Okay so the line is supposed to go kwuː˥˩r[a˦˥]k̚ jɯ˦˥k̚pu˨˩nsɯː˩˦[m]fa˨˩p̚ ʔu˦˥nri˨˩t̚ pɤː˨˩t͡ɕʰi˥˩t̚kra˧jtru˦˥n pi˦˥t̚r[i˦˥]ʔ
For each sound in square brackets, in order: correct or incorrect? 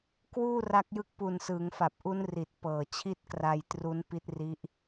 correct, incorrect: ŋ, correct

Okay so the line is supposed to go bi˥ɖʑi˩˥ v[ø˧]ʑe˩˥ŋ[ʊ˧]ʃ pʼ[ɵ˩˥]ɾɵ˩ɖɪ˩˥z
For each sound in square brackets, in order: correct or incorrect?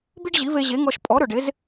incorrect: e˧, incorrect: ɔ˧, incorrect: ɔ˩˥

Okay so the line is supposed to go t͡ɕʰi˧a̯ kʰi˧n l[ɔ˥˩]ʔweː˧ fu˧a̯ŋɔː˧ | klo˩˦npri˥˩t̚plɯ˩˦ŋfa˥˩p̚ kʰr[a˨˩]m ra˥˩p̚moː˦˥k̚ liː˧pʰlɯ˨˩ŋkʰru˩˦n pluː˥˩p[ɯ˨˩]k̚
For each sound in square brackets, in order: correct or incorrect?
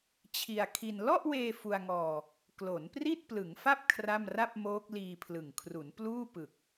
correct, incorrect: a˥˩, correct

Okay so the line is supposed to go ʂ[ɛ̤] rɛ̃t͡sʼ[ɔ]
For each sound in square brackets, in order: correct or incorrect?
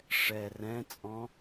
incorrect: ɛ, incorrect: ɔ̃

